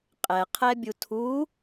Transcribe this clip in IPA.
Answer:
qʼ ɛ qʰ ɛ bʲ u tʰ u

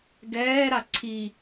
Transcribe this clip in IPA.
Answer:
ɡ ɛː ɾ a ǀʰ i

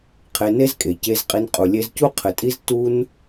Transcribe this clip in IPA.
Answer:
qʰ e˧ n e˦ z kʼ e˨ c e˧ z qʼ i˧ n qʼ u˨ lʲ e˧ z c u˦ qʰ ɘ˨ tʼ i˦ z t u˦ n

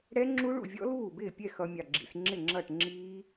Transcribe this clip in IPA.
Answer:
ɽ ɛ˦˥ ŋ͡ǁ u˦˥ ɭ ṵ˥˩ vʲ ɔ̰˦˥ l uː˥˩ b ɪː˥˩ pʲ ɛ˥˩ x ʌ˦˥ mʲ ɑ˥˩ ɡ͡ǁ ḭ˦˥ s ŋ͡ǁ ɪ˥˩ ŋ͡ǁ ʌ˥˩ ʈ ŋ͡ǁ iː˦˥

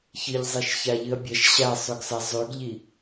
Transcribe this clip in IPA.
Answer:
ç ɨ ʎ zˤ e ʃ ç a ʎ ɨ ɐ̯ bʲ ɐ ʃ ɕ a sˤ ɵ ɡ s a zˤ ʉ ɡ ʎ i

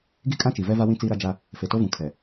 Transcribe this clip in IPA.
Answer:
ɡ i˦ kʼ ã˦ t͡ʃ i˨ v ɛ˦ v a˦ w ĩ˦ t͡s iː˦ ɾ a˦ d͡ʒ a˦ | f e˨ t o˦ v ũ˨ kʰ ɛ˨

